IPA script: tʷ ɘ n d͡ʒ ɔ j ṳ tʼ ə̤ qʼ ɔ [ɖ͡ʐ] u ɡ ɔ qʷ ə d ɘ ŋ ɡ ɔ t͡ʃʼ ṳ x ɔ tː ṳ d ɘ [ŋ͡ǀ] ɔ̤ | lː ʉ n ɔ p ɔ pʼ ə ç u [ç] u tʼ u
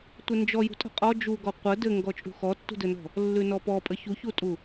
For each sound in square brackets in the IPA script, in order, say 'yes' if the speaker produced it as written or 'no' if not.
no, no, yes

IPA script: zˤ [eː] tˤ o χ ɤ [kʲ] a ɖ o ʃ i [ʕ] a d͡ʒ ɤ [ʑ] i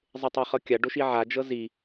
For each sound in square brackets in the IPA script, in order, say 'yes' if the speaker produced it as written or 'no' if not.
no, yes, yes, no

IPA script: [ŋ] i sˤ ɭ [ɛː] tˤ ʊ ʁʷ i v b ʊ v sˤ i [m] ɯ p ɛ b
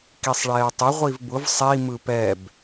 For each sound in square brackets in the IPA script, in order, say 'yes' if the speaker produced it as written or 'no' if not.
no, yes, yes

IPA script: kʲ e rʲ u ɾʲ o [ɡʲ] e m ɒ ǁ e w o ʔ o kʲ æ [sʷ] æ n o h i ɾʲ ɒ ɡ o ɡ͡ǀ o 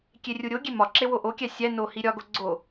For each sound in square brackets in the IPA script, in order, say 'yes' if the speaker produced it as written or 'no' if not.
yes, no

